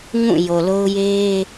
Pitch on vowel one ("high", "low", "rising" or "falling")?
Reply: falling